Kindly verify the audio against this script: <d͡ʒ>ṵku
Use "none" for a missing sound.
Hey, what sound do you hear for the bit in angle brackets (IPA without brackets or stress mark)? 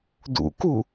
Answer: d